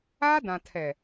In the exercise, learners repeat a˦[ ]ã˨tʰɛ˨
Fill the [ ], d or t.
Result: d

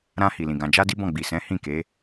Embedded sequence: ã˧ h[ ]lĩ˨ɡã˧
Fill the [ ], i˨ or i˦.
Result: i˨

